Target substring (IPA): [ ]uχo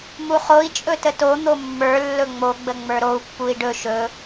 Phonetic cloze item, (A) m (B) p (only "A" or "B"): A